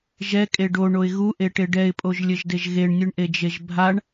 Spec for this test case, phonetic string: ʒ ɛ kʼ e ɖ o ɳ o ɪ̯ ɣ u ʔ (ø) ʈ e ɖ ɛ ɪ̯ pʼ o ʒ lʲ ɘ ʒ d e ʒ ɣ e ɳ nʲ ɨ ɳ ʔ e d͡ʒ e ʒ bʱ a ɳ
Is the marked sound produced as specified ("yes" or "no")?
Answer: no